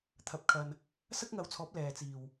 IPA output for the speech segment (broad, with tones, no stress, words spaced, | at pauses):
t̪ʰɐ˨˥p̚kʰɐ˨n | sɐ˥k̚ŋɐ˨˧wt͡sʰɔː˨˥p̚ lɛː˨t͡siː˨˩w